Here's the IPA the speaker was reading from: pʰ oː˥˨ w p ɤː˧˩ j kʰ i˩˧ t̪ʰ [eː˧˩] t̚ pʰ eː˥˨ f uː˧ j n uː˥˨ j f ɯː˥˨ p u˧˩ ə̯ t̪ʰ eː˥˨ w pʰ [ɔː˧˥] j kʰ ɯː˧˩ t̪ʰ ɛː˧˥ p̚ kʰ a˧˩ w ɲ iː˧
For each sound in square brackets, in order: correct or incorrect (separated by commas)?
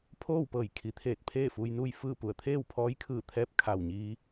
correct, correct